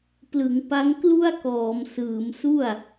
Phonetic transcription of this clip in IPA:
plɯ˩˦ŋpa˦˥ŋ klu˥˩a̯kɔː˩˦m sɯː˩˦m su˥˩a̯

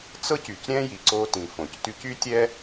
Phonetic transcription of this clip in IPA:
t͡sɤ˥cy˩cɾʲɛ̃˥ji˩ ǀo˧tĩ˩ fõ˩cty˧cy˥tʲɛ˥

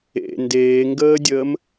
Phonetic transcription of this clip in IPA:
ḛ ndeːŋɡəːdʲəːm

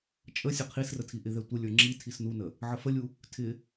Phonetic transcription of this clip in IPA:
t͡ʃʼə sʲəqʰisrə tʰiʔɪðɛ tʷəlʲə˞ ŋ͡ǁi tʰisnunə | ʕəfəlʲu | tʰɪ

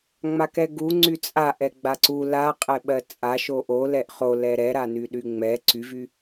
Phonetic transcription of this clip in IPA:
ŋ͡makɛɡu ŋ͡ǀyt͡sʼaʔɛ ɡ͡baǀu la qʼɛɓɜt͡sʼa ʃoʔo lɛʔχo lɛɾɛɾa nyɗyŋ͡mɛ ǀyvy

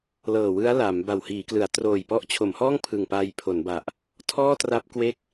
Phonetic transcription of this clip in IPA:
lɤː˨˩wɯ˦˥a̯ laː˩˦mba˨˩w hiː˩˦klɯ˩˦a̯troː˨˩j pɔ˦˥ʔt͡ɕʰo˩˦mhɔː˥˩ŋ pʰɯ˨˩ŋpa˧j pʰo˩˦nba˨˩ʔ | tʰɔː˥˩tra˦˥p̚ kwe˥˩k̚

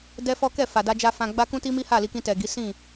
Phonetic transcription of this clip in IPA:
dɛ˦fɔ˦ kɛ˦˨fa˨da˧d͡ʒa˧ fã˧ɡ͡ba˦ kũ˦ti˦mi˦ ha˦˨li˧kĩ˧ tɛ˨ɡi˨˦ sĩ˦˨

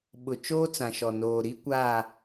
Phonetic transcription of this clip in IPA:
ɓʊ˨ t͡ʃoː˦t͡sã˨ʃɔ˨ noː˨ɾi˦ kʷaː˦˨

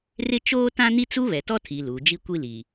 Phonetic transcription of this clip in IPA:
rɪ˦ t͡ʃoː˦ tã˦ni˦ t͡su˦βɛ˨tɔ˦tʰi˨ luː˨d͡ʒi˦kʷi˦li˨

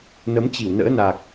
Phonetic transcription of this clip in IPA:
nə˨˦mt͡ɕi˧˩wnə̰ː˧˥na˨˩k̚

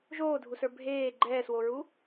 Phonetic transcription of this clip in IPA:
ʒoːdʱusə˞ bʱeː ɡ͡ǃɛːswoɹu

